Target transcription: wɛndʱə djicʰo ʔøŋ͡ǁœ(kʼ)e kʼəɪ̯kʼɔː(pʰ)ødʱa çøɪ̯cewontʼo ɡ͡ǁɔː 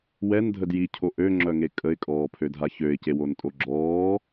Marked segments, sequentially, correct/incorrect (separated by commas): incorrect, correct